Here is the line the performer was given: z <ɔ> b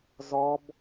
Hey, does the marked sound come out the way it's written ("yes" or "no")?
yes